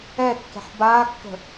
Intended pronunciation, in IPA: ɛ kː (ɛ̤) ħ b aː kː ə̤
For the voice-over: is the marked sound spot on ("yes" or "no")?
yes